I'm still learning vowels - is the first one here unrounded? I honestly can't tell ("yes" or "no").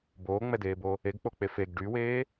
no